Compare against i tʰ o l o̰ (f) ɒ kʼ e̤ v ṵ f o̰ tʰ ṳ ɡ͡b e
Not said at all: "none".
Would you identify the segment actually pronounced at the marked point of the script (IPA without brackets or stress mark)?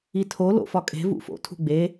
f